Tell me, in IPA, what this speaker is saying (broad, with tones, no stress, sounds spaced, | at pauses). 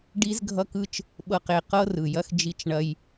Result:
ɖ i˦ z ɡʱ ʌ˦ k ɯ˦ t͡ʃ | ɓ ɤ˦ q e˦˨ q ɤ˦ r ɯ˨ j ɐ˦ x d͡ʒ i˦ t͡ʃ ɳ ɐ˦ j